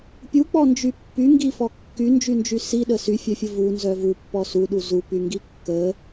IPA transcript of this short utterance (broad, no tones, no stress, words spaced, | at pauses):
pʲuk͡pɔnd͡ʒy pːyŋɡifɔ kːynd͡ʒynd͡ʒy siɗə syfʲœfʲə vunzœ vupːɔ suɗu zupyŋɡi kːə